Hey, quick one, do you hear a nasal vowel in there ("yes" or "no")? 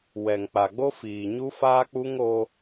no